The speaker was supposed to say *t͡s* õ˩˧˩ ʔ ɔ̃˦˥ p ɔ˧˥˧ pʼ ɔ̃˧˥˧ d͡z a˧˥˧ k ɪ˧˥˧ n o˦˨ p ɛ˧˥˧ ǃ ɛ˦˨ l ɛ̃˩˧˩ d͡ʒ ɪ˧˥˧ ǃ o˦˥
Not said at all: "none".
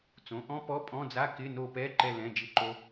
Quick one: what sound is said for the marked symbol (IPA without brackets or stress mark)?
t͡s